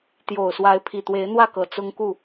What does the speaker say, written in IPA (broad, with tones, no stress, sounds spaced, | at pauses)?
t̪ j o˨˩ ʊ̯ s w a˨˦ ɪ̯ pʰ i˨˩ t̪ w e˨˦ ɪ̯ n̪ w ä˥˨ k ɤ˨˩ t͡s ʊ˦ ŋ k u˥˨